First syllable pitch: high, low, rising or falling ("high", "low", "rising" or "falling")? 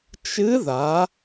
rising